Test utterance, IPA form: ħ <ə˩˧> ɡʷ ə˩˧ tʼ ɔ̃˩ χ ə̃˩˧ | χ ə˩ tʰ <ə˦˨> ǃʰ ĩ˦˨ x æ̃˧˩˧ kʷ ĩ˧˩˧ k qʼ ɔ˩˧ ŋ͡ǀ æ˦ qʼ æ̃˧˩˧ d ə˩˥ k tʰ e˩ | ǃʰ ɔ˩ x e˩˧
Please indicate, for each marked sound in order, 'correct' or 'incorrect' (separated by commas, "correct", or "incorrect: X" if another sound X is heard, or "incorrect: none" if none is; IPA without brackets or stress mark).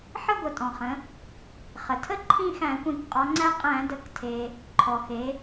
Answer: incorrect: ə˦, incorrect: ə˦